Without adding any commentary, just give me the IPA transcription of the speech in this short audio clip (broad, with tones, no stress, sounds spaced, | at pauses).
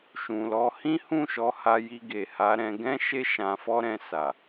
ʃ ũ˨ l ɔ˧ h ĩ˦ h ũ˦˨ ʃ ɔ˨˦ h a˧ j i˧ ɡ e˨ h a˨˦ ɾ ɛ̃˧ ɡ ɛ̃˦ ʃ e˦ ʃ ã˧ f ɔ˦ ɾ ɛ̃˧ s a˨